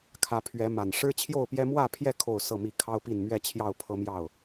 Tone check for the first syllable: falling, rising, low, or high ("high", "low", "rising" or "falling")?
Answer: rising